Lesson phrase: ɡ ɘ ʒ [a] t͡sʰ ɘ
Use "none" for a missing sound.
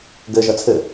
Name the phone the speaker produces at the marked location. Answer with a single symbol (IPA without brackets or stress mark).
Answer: ʌ